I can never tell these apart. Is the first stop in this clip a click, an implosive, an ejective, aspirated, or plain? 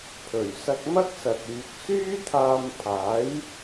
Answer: aspirated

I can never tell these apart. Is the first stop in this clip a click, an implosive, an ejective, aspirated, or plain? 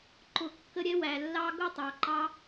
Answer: click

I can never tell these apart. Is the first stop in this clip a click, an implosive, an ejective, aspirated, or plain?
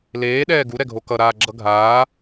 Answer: implosive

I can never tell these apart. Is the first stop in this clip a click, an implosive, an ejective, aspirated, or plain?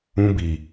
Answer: plain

